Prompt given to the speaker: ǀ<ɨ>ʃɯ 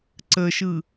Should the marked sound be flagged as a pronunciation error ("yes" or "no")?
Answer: yes